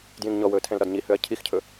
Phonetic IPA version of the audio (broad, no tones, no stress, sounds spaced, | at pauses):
d j ĩ ŋ ɲ ɔ w ɵː tʰ ɛ̃ l ɾ ɒ d ɲ i h ø ɐ̯ cʰ i x cʰ ɵ